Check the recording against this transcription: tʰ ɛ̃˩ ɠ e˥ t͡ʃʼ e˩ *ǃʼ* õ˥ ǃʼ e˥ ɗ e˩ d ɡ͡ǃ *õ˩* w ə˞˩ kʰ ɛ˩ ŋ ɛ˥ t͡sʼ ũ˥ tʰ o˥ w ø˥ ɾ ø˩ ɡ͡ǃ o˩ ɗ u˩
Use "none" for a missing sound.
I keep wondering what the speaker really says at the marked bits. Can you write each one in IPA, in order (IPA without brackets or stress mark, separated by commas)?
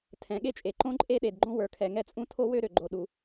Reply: ǃ, õ˥